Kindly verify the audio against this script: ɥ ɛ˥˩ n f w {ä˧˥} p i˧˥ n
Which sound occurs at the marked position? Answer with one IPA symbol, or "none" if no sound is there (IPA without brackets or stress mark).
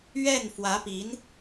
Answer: ä˧˥